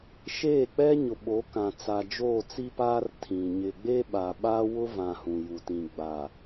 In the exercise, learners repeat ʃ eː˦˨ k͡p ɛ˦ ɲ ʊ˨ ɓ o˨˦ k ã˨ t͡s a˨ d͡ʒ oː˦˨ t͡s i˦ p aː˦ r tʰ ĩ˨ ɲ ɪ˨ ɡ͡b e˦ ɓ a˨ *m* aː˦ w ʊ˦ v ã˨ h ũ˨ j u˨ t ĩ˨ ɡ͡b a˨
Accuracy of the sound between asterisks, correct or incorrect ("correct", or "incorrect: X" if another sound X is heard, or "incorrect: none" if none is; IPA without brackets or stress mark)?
incorrect: ɓ